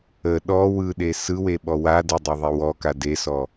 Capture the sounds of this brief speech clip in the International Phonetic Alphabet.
ə ɗ ɔ w ɯ ɗ e s ɯ w e ɓ ɔ w a d ə dˤ e ðˤ e w ɔ k a d e s ɔ

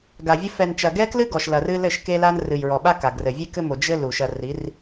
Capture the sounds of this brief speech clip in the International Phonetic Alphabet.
ɡ a˨ vʲ ɘ˦ f ɛ˨ n t͡ʃ ɐ˨ ɡ ɛ˦ k l ɨ˦ ɡ ɔ˨ ʃ l ɐ˨ r ɨ˦ l ɘ˦˨ ʃ k e˦ l a˦ n r ɨ˨ j ɹ ɔ˨ ɓ a˦ k a˨ ɡ r ɘ˨ vʲ e˦ k ɘ˦ m o˨ d͡ʒ ɘ˦ l u˨ ʃ ɐ˨ r i˨˦ r

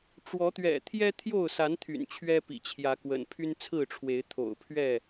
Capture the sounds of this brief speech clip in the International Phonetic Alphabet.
ʈ͡ʂ w ɔ˨˦ t̪ ɥ ɛ̰˨˩ t̪ʰ j ɛ˦ t̪ʰ j o˥˨ ʊ̯ s a˨˦ n t̪ʰ y̰˨˩ n t͡ɕʰ ɥ ɛ˦ p ḭ˨˩ t͡ɕʰ j ä˨˦ k w ə̰˨˩ n pʰ y˦ n t͡sʰ ɹ̩˥˨ ʈ͡ʂʰ w e˨˦ ɪ̯ t̪ʰ o̰˨˩ ʊ̯ pʰ ɥ ɛ˥˨

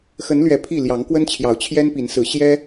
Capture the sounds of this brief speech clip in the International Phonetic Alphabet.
x ə˨˦ n l ɥ ɛ˨˩ pʰ i˥˨ l j ɑ˨˦ ŋ k w ə˦ n t͡ɕʰ j ɑ˨˦ ʊ̯ t͡ɕʰ j ɛ˦ n p i˨˦ n s ɹ̩˨˦ ɕ j ɛ˦

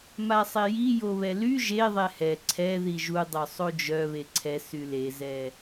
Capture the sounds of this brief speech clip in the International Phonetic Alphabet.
m a sˤ e j i j o β ɛ l y ʒ e ðˤ ɛ h ɛ ǀʰ ɛ ð i ʒ u dˤ œ sˤ o d͡ʒ œ β e ǀʰ ɛ s y l e z ɛ

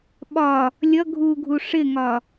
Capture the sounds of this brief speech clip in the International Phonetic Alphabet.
ɓ ɒ | lʲ ʌ ɡʱ u ɡʱ u ʂ ɪ ŋ ɒ

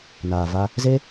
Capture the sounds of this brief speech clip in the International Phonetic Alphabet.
n aː˨ v a˧ | z e˦

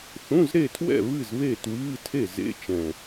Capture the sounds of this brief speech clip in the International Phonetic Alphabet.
θ ũ˧˥˧ z ɾ e˥˨ tʰ w ɛ̰˥˨ β ɨ˥˨ z β e˥˨ t w ɨː˧˥˧ tʰ e˥˨ z ḛ˧˥˧ t͡ʃ ɛ̃˨˩

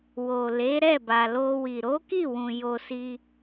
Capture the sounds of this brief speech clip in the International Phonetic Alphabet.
w o˨ l e˨˦ ɾ ɛ˦˨ b a˨ l o˧ w i˨ ɾ o˨˦ k i˦˨ w ũ˨ j o˧ s i˧

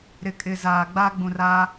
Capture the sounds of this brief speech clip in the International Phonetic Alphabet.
ɾ ɪ˨ kʼ ɪ˨ z aː˨ ɡ͡b a˦ ɡ͡b ũ˨ r a˦

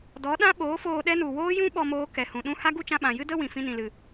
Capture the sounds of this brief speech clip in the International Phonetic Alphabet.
d ɔ˨˦ ɗ ã˦ ɓ oː˨˦ f oː˧ ɗ ɛ˦ n u˨ w oː˦ j ũ˦ ɓ ɔ˧ m oː˧ k ɛ˨ h ũ˨ ɗ ũ˦ h a˦ ɡ u˦ t͡ʃ ã˧ ɓ ã˨ j ɨ˦ d ə˦ w ĩ˨ f ĩ˧ n ĩ˨ l ɨ˨

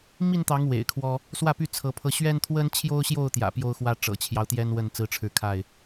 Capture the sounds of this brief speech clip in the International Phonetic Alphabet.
m i˥˨ n t̪ ɑ˨˦ ŋ w ḛ˨˩ ɪ̯ kʰ w ɔ˦ | s w ä˥˨ p y˥˨ t͡sʰ ɤ˨˦ pʰ ɤ˧ ɕ ɥ ɛ˦ n t̪ʰ w ə˦ n t͡ɕʰ j o˦ ʊ̯ ɕ j o˥˨ ʊ̯ t̪ j ä̰˨˩ p j o˦ ʊ̯ x w ä˦ ʈ͡ʂ ɤ̰˨˩ t͡ɕʰ j ɑ˦ ʊ̯ t̪ j ɛ˦ n w ə˥˨ n t͡s ɹ̩˦ ʈ͡ʂʰ ɻ̩˥˨ kʰ a˥˨ ɪ̯

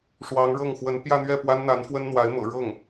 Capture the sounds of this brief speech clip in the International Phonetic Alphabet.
ʂ w ɑ˧˥ ŋ ɻ ɤ˥˩ ŋ x w ə˧˥ n p j ä˥˧ n̪ ɥ ɛ˥˩ p w a˥ n n̪ a˧˥ n f w ə˥ n n̪ w a˧˥ ɪ̯ m ɤ̰˨˩ ɻ ɤ˥˩ ŋ

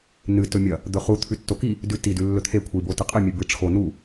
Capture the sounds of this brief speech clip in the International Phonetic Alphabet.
n ɨ t ɵ mʲ ɐ | d̪ ɵ χ u t̪ʰ ʉ tː o k i | d ʉ t i d ʉ lː ɵ t̪ʰ e kʷʰ i b o t ɨ qʼ ɨ mʲ ʉ b ɨ ʈ͡ʂʰ o n u

